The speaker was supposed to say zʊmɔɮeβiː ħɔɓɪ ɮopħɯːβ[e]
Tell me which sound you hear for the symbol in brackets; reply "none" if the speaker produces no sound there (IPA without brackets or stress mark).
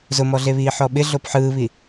i